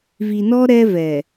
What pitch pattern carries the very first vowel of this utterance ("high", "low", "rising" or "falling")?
low